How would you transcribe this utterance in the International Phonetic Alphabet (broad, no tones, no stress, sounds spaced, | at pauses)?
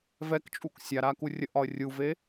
v ɛ k t͡ʃʼ u k sʲ a ɾ a k u rʲ ə ʔ ɒ ə̯ rʲ u v e